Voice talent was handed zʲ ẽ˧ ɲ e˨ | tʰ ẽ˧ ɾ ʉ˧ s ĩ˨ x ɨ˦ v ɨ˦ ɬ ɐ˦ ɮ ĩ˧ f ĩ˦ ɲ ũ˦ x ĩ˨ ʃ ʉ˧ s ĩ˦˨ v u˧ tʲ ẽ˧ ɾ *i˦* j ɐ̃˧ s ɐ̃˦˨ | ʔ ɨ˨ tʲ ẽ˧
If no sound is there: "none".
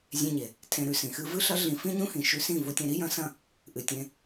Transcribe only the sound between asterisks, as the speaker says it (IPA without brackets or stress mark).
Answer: i˦